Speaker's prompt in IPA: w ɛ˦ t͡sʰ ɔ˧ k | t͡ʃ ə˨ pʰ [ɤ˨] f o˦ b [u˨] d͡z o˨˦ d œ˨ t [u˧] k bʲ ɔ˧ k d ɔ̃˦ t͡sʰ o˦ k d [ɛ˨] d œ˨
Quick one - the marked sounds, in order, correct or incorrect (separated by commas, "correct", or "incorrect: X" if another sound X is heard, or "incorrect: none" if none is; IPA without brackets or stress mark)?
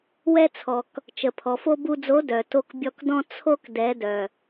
incorrect: ɔ˨, incorrect: u˧, incorrect: o˧, incorrect: ɛ˨˦